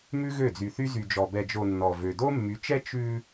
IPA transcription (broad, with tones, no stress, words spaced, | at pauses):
mʉ˦ɣø˦˨d͡zy˨θy˦ zy˨d͡ʒɔ˨ bɛ˨d͡ʒo˨ nːɔ˨vø˨ do˦mːy˨˦t͡ʃɛ˦ t͡ʃʉ˦